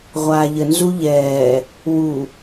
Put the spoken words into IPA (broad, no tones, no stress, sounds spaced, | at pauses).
ʁʷ aː ʎ ə n z u ʎ ɛː | w u